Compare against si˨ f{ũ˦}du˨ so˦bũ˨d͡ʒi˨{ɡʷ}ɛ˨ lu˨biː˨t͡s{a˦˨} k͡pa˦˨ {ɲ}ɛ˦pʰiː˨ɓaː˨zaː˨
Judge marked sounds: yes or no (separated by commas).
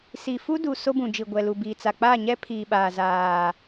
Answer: no, yes, no, yes